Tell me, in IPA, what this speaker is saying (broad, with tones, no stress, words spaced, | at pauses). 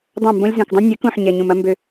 dˤã˦˨mbõ˦lʲ zũ˨kdˤə̃˦ nʲɛ˨˦kũ˨ħ ɲɛ˨ɲũ˨mɐ˦ mbø˦